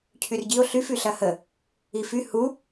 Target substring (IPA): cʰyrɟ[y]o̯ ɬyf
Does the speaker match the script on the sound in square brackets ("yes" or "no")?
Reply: no